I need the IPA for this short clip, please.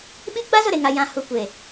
ɓi˦ɡ͡ba˦zʊ˨ ɾe˨ŋa˨ jã˨ hu˨ kʷe˨

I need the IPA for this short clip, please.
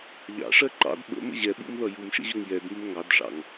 ʎɑ̰ʂɜ ǃɑ̰d ɓə̰ mə̰ʑɛɓṵm ðʌjumʃə̰ ʑʊŋjɛdmɪm ŋɑdʂɑ̰ŋ

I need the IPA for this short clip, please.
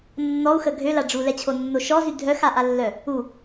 nːɔu̯xə ɡʱøla ɖ͡ʐulɛt͡ɕʰonːo ʃɔzy dʱœxaʔalːœ | u

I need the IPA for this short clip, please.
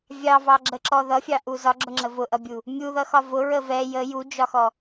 vʲɑvɑɡ͡ǁəǁɔ ðʌfʲɑʔu zɒɡ͡ǁʊŋ͡ǁə vʊʔʌbʲu | mʲuðʌxɒ vʊɹə vɛ jə jud͡ʒɒxɔ

